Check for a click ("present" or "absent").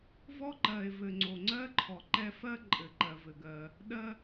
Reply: present